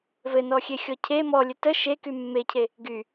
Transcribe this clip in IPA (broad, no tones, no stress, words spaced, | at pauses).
vɘnɔxʲexʲɔ cʰe mɔlʲə tə ʃeky mːecʰe | ɡy